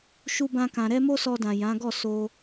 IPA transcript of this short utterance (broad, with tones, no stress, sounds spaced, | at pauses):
ʃ u˦ b ã˦ k ã˧ ɾ ɛ˦ m o˦ s ɔ˧ d ã˨ j ã˨˦ ɡ ɔ˦˨ s o˧